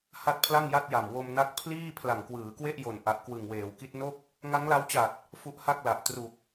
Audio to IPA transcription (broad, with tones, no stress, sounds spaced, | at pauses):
h a˥˩ t̚ pʰ l a˥˩ ŋ j a˥˩ t̚ j a˨˩ m w o˧ m n a˦˥ k̚ pʰ l iː˥˩ pʰ l a˨˩ ŋ k w ɯː˩˦ k w e˥˩ ʔ j o˨˩ n ʔ a˨˩ ʔ k w ɯ˨˩ ŋ w eː˩˦ w k i˦˥ t̚ n o˥˩ k̚ | ŋ a˦˥ ŋ l a˦˥ w t͡ɕ a˨˩ t̚ | f u˦˥ ʔ h a˥˩ k̚ l a˨˩ ʔ t r u˨˩ k̚